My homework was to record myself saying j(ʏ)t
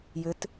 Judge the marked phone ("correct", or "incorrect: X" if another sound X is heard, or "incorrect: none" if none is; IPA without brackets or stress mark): correct